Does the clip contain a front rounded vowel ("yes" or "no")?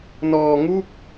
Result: no